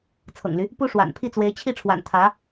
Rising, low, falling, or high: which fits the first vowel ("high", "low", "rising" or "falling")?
low